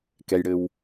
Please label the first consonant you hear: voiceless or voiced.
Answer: voiceless